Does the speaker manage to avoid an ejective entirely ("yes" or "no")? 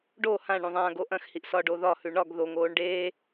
yes